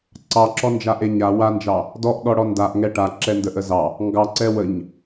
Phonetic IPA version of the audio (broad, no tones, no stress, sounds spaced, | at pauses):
ǀ ɑ ǁ ɔ n d͡ʒ a ʔ e ɲ a w a n d͡ʒ ɑ | d ɔ ʔ ɗ ɔ ɽ ɔ n d a ʔ ŋ ɛ ʈ a ǁ ɛ n d ə ʔ ə z ɑ | ŋ ɡ ɑ ǀ ɛ w ə ɲ